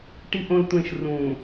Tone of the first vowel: low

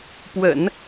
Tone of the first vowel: low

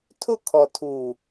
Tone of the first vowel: falling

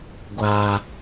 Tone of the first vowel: low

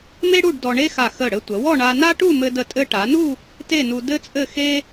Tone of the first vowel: high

